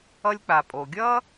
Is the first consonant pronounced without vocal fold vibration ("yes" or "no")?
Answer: no